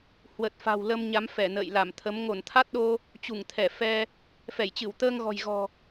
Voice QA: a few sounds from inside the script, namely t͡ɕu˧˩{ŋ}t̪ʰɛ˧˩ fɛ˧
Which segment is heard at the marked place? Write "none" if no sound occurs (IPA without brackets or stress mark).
ŋ